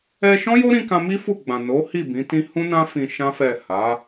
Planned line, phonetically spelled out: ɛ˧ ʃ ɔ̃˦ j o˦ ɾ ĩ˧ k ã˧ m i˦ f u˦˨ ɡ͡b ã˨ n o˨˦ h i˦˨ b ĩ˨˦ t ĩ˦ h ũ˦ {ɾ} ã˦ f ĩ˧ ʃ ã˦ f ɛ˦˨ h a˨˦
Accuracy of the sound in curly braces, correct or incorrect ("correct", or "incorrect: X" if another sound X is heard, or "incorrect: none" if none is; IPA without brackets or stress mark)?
incorrect: n